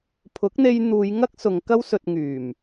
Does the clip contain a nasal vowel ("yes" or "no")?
no